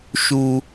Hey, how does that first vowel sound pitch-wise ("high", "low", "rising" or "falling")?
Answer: high